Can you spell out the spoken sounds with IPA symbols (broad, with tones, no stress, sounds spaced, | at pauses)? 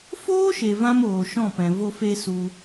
f oː˦ ʃ e˨ v ã˦ m oː˨ ʃ ɔ̃˦˨ p ɛ̃˨ v o˧ f e˧ s u˧